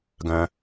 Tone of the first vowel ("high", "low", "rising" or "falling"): low